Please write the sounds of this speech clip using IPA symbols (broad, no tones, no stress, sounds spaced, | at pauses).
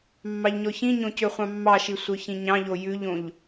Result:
mː ɑ ʎ ɲ ɔ ç ĩ ɲ õ c ø χʷ ɑ̃ mː ɑ ʃ i sʷ œ ç ĩ ɲ ɑ̃ ʎ o j ʉ ʎ õ ʎ